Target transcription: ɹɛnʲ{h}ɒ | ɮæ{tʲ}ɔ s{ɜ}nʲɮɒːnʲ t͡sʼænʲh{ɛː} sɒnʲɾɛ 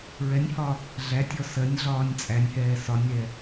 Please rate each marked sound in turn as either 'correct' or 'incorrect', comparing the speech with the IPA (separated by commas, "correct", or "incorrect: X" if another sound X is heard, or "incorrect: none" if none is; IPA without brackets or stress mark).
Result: correct, correct, correct, correct